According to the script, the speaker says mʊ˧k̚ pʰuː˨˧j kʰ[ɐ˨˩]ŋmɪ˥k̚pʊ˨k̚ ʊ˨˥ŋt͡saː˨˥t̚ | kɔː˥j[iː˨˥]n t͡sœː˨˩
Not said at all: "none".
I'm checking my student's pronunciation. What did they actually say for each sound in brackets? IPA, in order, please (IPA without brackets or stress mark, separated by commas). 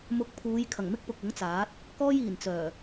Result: ɐ˨˩, iː˨˩